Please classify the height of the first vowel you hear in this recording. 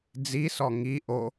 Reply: high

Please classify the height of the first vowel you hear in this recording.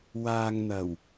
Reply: low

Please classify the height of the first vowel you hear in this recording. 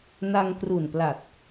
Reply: low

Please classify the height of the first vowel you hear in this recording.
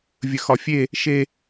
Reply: mid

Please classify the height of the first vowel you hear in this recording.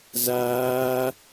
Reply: low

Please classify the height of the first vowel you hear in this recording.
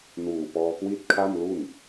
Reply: high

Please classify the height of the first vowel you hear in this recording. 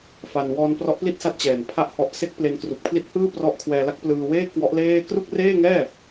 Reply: low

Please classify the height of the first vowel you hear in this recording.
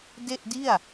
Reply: mid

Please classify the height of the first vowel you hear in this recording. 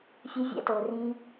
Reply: high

